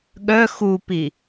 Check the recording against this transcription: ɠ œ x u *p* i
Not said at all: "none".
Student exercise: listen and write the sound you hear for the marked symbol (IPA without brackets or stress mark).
p